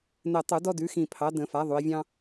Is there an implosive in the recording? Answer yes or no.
no